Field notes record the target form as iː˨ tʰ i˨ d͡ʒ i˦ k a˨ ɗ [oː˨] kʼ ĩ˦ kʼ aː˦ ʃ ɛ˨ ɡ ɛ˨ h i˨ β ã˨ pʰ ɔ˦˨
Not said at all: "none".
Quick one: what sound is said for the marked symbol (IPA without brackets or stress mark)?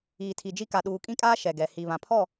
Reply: uː˨